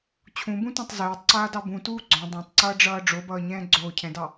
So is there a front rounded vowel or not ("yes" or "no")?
no